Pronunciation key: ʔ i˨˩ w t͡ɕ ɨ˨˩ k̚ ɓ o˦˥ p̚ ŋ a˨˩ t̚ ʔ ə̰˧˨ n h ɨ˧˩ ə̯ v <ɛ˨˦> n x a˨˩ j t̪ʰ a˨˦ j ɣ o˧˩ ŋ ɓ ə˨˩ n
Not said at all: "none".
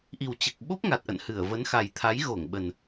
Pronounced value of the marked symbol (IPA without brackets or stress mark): ə˨˦